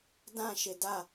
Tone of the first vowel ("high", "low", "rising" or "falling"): falling